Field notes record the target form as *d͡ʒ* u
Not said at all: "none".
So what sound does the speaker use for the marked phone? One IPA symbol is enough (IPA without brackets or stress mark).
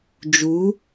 d͡ʒ